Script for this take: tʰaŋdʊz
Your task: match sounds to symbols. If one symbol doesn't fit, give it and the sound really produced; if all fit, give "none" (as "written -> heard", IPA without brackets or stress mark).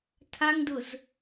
none